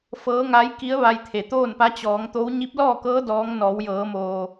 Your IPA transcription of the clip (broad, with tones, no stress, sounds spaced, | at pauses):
f ɤː˧˥ ŋ a˧˥ j k i˧˥ ə̯ ʋ a˧ j t̪ʰ e˩ t̪ oː˥˨ n p a˧˥ t͡ɕ ɔː˩˧ ŋ t̪ o˧˥ w ɲ i˧˥ p̚ l ɔː˥˨ k ɤː˧˥ d ɔː˧˥ ŋ n ɔː˩˧ w j ɤː˩˧ m oː˩